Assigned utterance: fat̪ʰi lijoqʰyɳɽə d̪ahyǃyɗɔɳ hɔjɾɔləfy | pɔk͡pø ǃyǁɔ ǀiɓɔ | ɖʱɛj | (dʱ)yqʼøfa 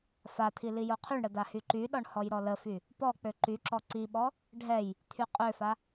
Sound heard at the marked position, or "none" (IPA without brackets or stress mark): t̪ʰ